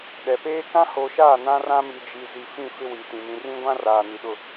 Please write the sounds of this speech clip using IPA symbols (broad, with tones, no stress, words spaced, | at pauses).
ɗɛ˨peː˦ kã˦ho˨˦ʃaː˦˨ nã˦rã˦mi˨ d͡ʒi˨ zi˨fĩ˦˨ fɪ˦wi˨tĩ˨ mĩ˨rĩ˦ɡʷã˦ raː˨ni˨ɗʊ˦˨